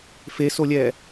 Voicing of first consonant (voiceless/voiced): voiceless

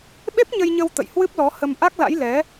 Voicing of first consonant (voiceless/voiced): voiced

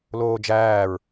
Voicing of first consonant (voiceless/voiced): voiced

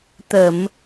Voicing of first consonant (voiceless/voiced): voiceless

